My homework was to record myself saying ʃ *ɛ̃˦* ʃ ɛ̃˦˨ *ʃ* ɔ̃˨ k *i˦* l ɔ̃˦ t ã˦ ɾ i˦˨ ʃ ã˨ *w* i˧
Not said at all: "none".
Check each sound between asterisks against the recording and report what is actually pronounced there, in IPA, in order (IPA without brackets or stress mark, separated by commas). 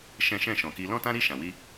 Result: ɛ̃˦, ʃ, i˧, w